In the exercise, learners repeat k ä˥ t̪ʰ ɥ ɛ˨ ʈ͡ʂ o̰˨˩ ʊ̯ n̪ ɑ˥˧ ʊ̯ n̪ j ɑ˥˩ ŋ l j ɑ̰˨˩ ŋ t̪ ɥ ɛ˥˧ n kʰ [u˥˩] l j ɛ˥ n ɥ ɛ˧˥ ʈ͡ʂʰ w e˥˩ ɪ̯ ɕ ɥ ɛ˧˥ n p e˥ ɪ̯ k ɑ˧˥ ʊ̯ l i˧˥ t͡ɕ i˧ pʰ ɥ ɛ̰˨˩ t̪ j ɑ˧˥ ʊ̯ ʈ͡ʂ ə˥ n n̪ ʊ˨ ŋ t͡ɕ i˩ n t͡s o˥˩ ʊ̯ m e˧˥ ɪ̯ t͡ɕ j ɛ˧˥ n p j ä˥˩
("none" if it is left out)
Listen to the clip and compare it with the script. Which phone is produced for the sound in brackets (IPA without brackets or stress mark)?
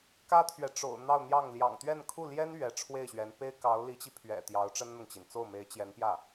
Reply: u˥˩